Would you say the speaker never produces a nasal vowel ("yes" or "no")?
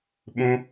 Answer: no